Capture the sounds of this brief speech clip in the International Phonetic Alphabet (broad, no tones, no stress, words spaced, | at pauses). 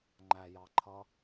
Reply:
ŋ͡ǃæjɑǃʰʌ